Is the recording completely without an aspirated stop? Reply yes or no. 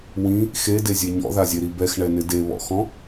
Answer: yes